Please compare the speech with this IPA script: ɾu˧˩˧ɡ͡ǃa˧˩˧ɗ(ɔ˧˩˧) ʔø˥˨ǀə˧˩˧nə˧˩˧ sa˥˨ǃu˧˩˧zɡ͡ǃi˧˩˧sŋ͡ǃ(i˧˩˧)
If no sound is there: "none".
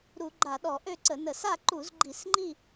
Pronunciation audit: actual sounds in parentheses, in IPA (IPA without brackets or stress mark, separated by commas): ɔ˧˩˧, i˥˨